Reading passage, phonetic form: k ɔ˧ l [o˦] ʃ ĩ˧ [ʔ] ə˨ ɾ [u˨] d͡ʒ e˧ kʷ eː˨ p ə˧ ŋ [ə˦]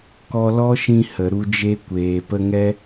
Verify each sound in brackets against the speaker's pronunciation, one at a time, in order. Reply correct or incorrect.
incorrect: ɔ˦, incorrect: h, incorrect: u˧, incorrect: ɛ˦

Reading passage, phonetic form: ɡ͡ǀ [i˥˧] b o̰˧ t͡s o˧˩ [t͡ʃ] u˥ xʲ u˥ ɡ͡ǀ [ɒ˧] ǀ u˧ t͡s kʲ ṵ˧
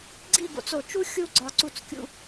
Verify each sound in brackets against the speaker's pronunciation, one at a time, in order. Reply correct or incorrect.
correct, correct, correct

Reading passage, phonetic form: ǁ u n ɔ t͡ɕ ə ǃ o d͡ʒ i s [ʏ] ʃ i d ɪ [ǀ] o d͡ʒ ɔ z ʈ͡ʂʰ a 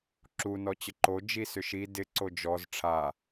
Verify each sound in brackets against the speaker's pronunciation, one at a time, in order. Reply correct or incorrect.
correct, correct

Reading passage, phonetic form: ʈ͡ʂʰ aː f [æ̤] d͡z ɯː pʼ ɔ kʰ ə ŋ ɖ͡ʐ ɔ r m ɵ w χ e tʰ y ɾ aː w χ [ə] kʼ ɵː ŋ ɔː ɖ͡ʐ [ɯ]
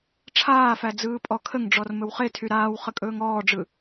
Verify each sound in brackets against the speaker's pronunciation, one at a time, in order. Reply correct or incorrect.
incorrect: æ, correct, correct

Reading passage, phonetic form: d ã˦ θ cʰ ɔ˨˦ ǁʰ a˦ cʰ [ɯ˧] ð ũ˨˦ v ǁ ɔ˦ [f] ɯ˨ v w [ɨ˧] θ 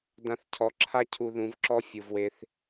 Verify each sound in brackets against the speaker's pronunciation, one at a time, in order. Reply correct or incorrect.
incorrect: u˧, incorrect: fʲ, incorrect: e˧

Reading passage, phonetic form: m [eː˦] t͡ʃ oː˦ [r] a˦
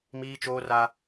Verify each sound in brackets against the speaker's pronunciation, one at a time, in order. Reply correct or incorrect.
incorrect: iː˦, correct

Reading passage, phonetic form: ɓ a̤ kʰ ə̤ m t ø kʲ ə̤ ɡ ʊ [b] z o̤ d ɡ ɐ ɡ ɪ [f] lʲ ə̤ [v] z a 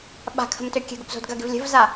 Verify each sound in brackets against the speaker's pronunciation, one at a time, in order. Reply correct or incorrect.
correct, incorrect: v, correct

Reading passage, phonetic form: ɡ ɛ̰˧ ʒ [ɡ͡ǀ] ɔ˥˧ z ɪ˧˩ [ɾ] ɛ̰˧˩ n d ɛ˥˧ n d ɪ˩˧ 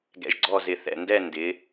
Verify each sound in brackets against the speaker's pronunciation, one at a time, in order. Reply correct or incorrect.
correct, incorrect: θ

